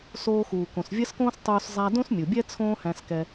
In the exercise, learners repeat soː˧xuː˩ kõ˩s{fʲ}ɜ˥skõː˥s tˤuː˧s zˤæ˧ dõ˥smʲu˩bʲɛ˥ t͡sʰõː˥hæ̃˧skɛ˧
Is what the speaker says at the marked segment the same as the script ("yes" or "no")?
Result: no